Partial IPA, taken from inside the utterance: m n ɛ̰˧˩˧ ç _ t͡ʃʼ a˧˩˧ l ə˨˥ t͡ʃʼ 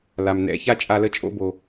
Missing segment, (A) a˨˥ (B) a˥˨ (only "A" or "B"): B